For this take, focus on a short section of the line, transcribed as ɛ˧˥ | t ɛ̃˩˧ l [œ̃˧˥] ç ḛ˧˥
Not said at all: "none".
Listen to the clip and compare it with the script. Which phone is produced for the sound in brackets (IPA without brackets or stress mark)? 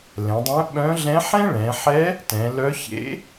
œ˧˥